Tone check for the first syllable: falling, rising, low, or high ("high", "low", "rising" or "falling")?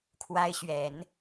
high